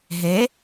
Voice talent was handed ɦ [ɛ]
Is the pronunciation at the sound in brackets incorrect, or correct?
incorrect